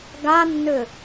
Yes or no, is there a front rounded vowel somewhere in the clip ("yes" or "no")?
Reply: yes